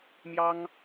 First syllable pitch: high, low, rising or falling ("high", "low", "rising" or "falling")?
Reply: high